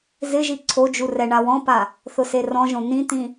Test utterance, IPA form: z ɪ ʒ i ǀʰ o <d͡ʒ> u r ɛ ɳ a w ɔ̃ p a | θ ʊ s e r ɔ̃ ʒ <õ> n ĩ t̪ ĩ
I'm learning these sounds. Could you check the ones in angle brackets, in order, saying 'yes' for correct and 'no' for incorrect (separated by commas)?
yes, yes